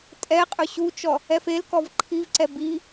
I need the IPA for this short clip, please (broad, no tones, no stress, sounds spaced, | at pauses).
tʼ ɛ qʼ ɵ ɕ u t͡ʃ ɔ | ɛ f e l k ɔ v ǃʰ i v ǀ ɛ b i